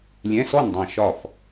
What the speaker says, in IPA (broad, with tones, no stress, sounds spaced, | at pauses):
lʲ ɛ̃˧˥˧ s ɔ˥˨ n dˤ ɑ̃˧˩ ʃ ɒ˧˩ f